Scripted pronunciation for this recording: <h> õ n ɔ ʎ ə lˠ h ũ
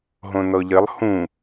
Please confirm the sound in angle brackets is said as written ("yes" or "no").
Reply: no